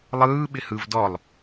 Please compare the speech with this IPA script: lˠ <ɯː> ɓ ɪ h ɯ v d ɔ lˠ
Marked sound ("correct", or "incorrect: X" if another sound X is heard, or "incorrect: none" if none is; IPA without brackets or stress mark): correct